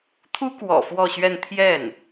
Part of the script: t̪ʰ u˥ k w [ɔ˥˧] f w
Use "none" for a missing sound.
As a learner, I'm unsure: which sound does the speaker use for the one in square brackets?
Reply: ɔ̰˨˩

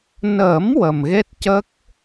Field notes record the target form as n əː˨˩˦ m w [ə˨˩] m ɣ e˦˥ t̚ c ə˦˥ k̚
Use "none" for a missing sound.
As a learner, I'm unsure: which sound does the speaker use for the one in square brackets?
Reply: ə˨˩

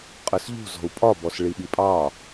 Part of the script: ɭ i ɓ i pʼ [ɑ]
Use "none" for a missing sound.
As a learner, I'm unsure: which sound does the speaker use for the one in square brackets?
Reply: ɑ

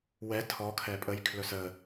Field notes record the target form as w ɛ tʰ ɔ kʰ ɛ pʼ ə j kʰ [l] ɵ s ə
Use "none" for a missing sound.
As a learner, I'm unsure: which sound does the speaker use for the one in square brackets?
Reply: l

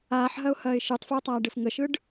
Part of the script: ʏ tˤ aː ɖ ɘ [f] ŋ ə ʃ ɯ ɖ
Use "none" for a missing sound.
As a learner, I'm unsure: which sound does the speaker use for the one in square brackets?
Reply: f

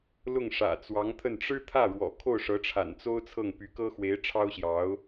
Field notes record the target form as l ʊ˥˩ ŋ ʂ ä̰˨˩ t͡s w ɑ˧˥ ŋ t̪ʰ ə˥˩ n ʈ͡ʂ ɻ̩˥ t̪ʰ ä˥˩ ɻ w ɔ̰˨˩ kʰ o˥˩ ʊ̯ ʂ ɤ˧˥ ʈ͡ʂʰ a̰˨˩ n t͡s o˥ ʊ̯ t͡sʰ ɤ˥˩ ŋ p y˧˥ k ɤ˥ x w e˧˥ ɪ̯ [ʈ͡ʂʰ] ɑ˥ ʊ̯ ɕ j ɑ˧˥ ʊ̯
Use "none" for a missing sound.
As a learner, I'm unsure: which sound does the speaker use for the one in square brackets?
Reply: ʈ͡ʂʰ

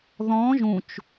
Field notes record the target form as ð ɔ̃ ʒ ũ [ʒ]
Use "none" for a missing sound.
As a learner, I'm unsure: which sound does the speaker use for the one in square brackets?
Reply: t͡ʃ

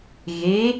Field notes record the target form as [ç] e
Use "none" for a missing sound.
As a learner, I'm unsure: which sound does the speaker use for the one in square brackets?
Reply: ɣ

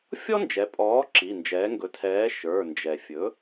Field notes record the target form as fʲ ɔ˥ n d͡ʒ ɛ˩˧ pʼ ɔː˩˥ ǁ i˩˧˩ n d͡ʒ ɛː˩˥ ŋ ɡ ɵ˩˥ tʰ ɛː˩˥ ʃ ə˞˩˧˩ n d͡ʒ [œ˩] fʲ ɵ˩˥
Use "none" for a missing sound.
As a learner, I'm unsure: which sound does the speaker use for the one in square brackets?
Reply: ɛ˩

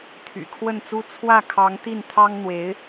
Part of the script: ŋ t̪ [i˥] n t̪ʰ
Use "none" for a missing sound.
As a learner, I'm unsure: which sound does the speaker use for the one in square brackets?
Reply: i˥˩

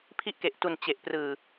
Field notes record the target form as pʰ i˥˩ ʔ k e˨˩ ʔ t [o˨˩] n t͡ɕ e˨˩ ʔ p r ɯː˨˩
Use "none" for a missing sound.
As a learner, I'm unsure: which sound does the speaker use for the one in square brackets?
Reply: u˨˩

